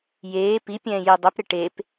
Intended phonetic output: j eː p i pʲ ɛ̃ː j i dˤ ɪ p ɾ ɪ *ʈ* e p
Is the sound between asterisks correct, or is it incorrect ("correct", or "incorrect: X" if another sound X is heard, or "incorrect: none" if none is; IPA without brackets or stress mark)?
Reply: correct